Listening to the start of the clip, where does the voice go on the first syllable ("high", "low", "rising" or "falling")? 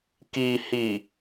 low